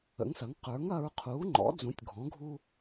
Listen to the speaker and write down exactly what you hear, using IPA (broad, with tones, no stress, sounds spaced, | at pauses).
ə̰˩˥ ŋ s ɐ˩˥ ŋ q ə˞˩˥ ŋ ɐ˦ ɹ qʰ uː˩˥ ŋ͡ǃ ɔ̰˩˥ d͡z ũ˩˥ tʲ ɡʱ ɔ̃˩˥ ɡʱ u˦